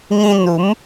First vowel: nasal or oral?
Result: nasal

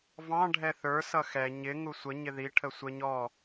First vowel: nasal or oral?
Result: nasal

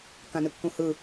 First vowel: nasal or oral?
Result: nasal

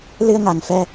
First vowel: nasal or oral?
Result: oral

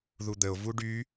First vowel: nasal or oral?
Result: oral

